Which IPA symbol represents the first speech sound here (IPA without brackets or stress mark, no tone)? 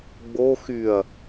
ɡ͡b